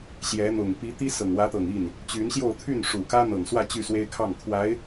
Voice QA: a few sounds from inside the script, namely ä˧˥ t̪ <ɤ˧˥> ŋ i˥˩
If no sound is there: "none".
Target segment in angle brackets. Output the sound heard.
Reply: ɤ˨˩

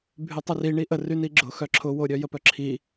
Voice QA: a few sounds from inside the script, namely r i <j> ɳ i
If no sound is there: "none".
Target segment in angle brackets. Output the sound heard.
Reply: none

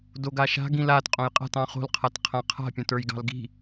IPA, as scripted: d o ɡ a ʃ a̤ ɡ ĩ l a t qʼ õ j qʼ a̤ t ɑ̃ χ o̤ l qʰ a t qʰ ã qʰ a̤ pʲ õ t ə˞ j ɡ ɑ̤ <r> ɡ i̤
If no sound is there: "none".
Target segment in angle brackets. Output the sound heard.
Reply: l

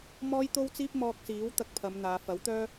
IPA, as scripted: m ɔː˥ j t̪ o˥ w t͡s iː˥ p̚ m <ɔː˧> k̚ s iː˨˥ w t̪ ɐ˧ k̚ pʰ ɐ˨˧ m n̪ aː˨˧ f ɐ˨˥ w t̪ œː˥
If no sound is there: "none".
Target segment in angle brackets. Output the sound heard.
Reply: ɔː˧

